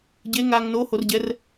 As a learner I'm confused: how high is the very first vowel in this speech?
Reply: mid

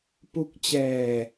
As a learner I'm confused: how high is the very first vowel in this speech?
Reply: high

